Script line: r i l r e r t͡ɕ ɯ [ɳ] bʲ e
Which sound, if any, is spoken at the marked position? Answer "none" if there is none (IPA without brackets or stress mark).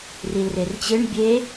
ɳ